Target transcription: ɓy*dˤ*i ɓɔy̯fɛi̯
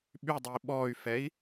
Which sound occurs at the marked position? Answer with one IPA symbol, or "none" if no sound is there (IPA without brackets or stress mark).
dˤ